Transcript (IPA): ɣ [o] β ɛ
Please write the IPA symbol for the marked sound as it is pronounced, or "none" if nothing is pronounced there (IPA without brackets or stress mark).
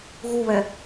u